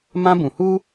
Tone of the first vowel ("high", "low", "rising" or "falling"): high